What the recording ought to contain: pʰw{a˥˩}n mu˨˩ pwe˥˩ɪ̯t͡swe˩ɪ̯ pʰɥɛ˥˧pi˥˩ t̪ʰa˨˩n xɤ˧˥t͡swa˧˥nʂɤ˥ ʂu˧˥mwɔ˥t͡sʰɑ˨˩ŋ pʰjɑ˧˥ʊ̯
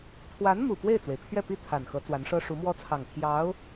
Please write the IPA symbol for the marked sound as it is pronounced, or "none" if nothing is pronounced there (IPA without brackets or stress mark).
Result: a˧˥